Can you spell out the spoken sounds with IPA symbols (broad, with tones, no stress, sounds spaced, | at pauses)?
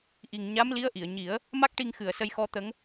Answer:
ʔ i˨˩ ŋ ɲ a˧˥ m l i˧˥ ə̯ ʔ i˨˩˨ ə̯ ɲ i˨˩˦ ə̯ | m a˦˥ k̚ ʈ i˧ ŋ x ɨ˨˩ ə̯ s ə˧ j x ɔ˧˥ t̪ ə˧˥ ŋ